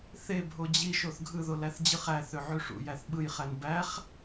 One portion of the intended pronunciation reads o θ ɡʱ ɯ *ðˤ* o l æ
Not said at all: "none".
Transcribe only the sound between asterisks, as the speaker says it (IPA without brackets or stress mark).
ð